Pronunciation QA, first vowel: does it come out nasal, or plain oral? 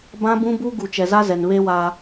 nasal